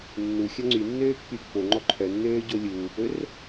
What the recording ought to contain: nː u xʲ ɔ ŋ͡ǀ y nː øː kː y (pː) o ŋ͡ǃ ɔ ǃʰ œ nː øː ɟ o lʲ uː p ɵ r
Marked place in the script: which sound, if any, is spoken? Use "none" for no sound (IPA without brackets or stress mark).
pː